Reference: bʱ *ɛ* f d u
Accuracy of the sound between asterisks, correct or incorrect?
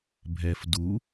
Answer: correct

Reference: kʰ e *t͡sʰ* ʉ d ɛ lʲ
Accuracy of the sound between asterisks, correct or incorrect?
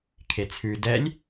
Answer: correct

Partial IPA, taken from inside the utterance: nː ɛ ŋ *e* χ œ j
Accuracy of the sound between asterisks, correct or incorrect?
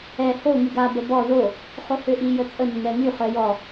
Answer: incorrect: y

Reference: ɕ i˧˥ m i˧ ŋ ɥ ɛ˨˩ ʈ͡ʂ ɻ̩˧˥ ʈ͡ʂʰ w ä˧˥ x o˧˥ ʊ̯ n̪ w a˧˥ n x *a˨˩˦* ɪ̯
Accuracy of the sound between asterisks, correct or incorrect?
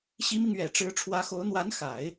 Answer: correct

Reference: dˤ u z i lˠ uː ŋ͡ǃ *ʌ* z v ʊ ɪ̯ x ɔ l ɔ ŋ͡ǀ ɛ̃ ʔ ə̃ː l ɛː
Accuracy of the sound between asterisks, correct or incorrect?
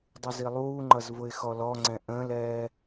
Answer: correct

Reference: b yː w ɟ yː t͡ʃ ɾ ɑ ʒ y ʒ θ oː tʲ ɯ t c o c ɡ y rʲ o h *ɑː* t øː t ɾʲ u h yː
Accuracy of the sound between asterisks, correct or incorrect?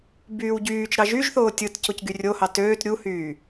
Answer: incorrect: ɑ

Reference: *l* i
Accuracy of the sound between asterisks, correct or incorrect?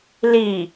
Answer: correct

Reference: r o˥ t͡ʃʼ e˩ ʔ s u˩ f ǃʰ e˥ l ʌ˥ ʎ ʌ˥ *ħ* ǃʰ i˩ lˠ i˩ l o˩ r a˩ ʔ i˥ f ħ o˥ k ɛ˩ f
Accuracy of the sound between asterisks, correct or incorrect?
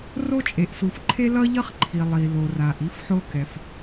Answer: incorrect: χ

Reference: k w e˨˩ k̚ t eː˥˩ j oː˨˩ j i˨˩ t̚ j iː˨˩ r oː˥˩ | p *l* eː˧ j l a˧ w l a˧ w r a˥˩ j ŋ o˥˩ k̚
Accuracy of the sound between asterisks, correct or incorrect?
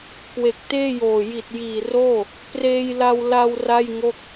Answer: incorrect: r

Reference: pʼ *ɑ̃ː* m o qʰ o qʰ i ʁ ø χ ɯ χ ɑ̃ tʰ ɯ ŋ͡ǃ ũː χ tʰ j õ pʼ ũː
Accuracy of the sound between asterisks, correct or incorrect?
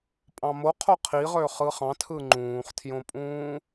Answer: incorrect: ɑ̃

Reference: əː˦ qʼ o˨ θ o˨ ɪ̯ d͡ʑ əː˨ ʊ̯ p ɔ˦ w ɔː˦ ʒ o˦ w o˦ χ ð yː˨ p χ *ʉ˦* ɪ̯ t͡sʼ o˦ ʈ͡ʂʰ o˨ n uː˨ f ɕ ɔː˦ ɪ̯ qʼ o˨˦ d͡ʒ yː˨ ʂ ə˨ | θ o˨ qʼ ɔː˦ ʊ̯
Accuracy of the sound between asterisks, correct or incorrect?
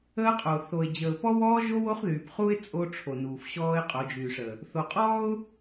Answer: incorrect: u˦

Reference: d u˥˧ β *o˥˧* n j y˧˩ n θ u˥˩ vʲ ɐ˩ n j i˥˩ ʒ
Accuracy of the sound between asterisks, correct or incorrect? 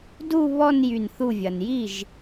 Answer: incorrect: ɔ˥˧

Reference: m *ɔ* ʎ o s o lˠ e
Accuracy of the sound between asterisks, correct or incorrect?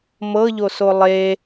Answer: incorrect: ɤ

